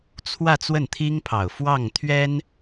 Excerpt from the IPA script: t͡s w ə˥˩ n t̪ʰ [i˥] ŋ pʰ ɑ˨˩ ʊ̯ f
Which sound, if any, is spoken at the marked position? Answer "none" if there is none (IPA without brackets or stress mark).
i˥